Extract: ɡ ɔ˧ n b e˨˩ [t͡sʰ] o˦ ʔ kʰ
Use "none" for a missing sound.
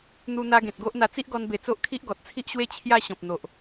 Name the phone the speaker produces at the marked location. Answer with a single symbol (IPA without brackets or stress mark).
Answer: t͡s